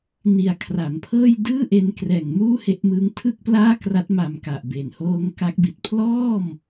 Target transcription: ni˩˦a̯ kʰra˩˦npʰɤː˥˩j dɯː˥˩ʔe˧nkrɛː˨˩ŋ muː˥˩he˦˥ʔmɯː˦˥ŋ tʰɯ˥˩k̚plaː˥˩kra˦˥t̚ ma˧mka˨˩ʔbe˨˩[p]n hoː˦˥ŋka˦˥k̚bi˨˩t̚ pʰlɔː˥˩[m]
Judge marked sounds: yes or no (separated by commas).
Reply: no, yes